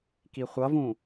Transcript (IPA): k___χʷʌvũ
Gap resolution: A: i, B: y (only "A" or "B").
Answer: A